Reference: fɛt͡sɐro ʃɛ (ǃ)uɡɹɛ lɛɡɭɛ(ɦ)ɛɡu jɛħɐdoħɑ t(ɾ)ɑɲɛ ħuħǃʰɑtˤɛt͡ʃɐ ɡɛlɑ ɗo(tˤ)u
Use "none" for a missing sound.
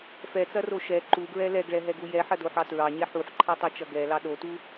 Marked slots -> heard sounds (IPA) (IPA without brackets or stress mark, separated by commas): ǃ, ɦ, ɹ, t